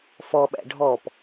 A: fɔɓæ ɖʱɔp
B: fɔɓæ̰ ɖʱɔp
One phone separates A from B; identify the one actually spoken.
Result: B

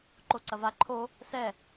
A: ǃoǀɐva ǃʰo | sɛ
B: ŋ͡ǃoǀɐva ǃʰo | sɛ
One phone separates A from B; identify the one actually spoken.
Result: A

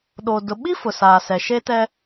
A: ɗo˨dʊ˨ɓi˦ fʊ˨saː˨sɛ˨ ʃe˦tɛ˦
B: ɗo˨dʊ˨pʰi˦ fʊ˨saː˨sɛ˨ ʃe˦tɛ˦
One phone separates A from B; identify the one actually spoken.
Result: A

